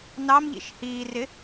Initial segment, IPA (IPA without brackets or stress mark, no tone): n